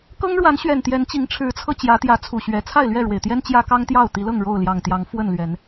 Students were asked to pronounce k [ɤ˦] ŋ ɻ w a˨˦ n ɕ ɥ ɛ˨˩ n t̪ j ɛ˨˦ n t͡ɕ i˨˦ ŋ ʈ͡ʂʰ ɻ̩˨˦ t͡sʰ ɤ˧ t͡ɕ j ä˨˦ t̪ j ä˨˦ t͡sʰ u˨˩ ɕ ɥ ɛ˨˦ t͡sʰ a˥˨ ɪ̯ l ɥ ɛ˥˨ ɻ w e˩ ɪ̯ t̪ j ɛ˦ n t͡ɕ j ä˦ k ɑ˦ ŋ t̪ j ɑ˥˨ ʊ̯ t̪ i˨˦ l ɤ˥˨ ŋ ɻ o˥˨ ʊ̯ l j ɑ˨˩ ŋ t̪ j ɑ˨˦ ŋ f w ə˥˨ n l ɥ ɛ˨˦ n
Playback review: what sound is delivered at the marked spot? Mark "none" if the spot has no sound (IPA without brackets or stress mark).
ɤ˦